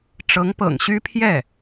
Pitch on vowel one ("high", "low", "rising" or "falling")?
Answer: rising